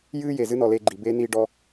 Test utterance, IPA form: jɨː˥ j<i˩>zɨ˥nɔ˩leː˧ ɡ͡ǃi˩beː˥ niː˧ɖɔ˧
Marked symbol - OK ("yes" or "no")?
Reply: no